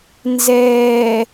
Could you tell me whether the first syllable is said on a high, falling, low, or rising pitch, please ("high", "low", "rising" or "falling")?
low